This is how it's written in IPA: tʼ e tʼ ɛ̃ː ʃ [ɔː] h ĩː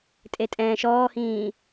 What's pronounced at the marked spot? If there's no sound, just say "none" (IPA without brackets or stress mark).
ɔː